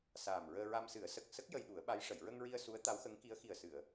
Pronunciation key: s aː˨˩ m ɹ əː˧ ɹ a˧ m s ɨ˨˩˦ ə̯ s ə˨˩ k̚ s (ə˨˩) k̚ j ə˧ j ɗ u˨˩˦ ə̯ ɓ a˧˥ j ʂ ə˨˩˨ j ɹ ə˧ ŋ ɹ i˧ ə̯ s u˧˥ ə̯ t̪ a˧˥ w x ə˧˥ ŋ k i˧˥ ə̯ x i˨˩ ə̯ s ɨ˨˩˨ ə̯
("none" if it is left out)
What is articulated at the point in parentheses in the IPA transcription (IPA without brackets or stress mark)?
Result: ə˦˥